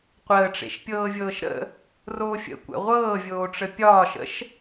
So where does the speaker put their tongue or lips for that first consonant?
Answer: uvula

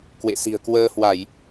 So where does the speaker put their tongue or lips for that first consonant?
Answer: velum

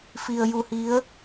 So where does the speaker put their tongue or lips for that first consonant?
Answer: lips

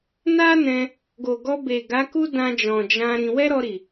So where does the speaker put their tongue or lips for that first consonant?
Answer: tongue tip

